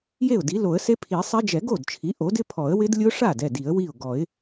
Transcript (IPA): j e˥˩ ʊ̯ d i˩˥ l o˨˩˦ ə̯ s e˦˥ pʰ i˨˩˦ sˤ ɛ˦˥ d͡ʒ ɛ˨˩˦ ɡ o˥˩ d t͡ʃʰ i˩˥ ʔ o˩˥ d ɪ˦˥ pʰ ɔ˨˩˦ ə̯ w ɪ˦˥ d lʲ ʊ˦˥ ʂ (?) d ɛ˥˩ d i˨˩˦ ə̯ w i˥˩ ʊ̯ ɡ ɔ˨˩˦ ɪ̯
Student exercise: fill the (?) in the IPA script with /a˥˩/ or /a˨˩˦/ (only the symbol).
a˥˩